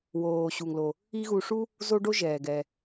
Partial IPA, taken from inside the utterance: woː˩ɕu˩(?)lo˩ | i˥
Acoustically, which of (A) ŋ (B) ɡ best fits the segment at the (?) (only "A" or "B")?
A